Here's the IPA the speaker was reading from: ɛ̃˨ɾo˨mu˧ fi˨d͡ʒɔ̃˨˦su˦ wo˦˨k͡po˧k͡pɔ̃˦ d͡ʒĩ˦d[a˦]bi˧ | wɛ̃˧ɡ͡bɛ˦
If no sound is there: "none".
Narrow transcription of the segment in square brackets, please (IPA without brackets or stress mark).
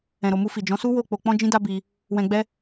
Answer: a˦